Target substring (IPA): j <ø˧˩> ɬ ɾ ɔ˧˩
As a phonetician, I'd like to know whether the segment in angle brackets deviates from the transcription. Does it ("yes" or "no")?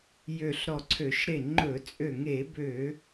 no